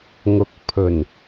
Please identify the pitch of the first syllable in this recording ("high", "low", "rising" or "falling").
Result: rising